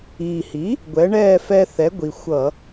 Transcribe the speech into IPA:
iː˨˩hi˩˥ | ɡʷɛ˩˥ɳɛː˥˨fɛ˦ θɛ˩˥ɡʷi˨˩ xʷʌ˧˩˧

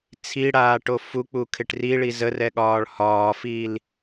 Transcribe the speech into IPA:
t͡sʰiɽaːʈo fuk͡pukʰɪʈ riɭi zərɛɠɒːɭ hɒːfiːl

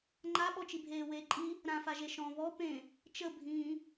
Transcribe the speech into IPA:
ŋ͡ǃaɓɔt͡ʃibʱeː weːǃʼi | ɾãfaʒe ʃɔ̃ βɔ pẽ | t͡ʃəbʱĩː

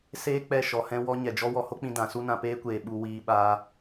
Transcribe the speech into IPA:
seː˦ k͡pɛ˦˨ ʃɔ˧hɛ̃˦ wɔ˦ ɲɛ˨d͡ʒɔ˦ wɔ˧ho˦k͡pĩ˧ dã˨˦su˦ nã˧peː˦kʷeː˨ ɓu˧wiː˧ ɓaː˧

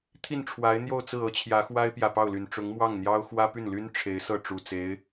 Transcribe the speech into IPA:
t̪ʰi˥˩nʈ͡ʂʰwa˧˥ɪ̯n̪jo˥˧ʊ̯t͡sɹ̩˥˩ ɤ˥t͡ɕʰjä˧˥xwa˥ɪ̯ pjä˨˩pɑ˥˩ʊ̯ly˨˩n ʈ͡ʂʊ˧˥ŋmwɑ˥˩ŋn̪jɑ˥ʊ̯ xwä˥py˥˩nly˥n ʈ͡ʂʰe˧˥ɪ̯sɤ˥˩ ʈ͡ʂu˨˩t͡se˧˥ɪ̯

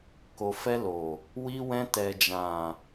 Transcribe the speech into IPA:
ko˨fɛ˧ lo˨ | wi˧wɛ̃˧ tɛ˨d͡ʒã˨

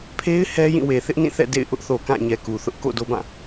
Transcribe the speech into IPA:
pʰe˦ɪ̯ hɛ˦jĩ˦˨we˨ θɪ˦ʔnĩ˦˨θɛ̰˦˨ dḛ˦˨ɪ̯ʔʊ˦ʔθo˨ kã˦˨ɲɛ˨ ku˨ θʊ˦ʔko̰˦˨do˦bã˦˨

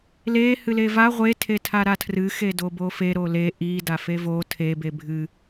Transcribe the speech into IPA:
le hɨleva ʁʷe tʰetʰaɾatʰrɨ xedobofe ɾole ʔi dafevo tʰe bebʱɨ

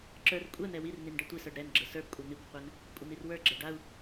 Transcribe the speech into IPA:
ǁə˞r kʷʼɛn̪ɛ wirnin ɖɛtʷisə˞ɖ ɾɛnɡ͡ǁə sə˞bkʷʼɛ n̪ikʷqʷɛn | kʷʼən̪irwə˞ɡ͡ǁɛ ɖau̯

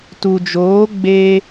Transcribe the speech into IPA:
tu˨d͡ʒoː˨˦ ɡ͡be˧

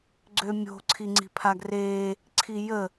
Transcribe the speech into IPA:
ɡ͡ǀømʲo̤ ǀʰiŋ͡ǀi̤pʰaɡreː | ǀʰijə

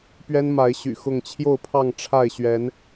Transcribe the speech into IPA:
pɥɛ˦nma˨˦ɪ̯ɕy̰˨˩xʊ˥˨ŋ t͡ɕʰjo˥˨ʊ̯pʰɑ˥˨ŋ ʈ͡ʂʰa˥˨ɪ̯ɕɥɛ˨˦n

